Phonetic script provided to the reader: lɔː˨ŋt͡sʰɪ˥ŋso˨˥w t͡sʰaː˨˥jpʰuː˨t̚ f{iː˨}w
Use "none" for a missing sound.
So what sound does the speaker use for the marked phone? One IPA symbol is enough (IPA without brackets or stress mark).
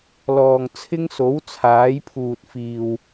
iː˨